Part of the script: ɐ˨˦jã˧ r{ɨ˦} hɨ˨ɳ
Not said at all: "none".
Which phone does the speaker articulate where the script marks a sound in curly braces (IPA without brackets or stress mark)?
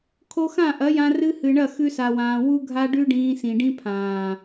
ɨ˦